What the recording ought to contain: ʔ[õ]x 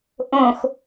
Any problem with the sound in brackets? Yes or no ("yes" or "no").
no